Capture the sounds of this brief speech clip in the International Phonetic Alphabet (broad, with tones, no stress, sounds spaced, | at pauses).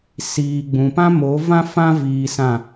s iː˨ ɡ͡b ũ˨ p ã˦ m o˨˦ v ã˦ f ã˦ v iː˧ s ã˦˨